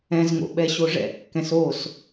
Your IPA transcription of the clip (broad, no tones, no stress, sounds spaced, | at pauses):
ɛ̃ z ŋ o̰ ɓ ɛ ɕ o ʐ ɛ̰ kː ɛ̃ s o s